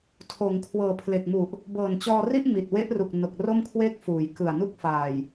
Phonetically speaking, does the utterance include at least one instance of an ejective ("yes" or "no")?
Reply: no